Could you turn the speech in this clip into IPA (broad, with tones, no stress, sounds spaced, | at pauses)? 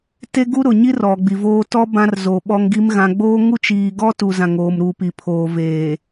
t e˦ ɡ u˦ ɾ ʊ˨ ɲ i˦ r ɔ˨ ɡ͡b i˨ v oː˦ t ɔ˦ b ã˦ r z o˨ ɓ ɔ˦ ŋ ɡ i˦ m ɣ ã˨ ɡ͡b oː˦ ŋ u˦ t͡ʃ iː˨ ɡ ɔ˦ t u˨ z ã˨ ŋ oː˨ m ɾ uː˨ p i˨ pʰ oː˨ v eː˨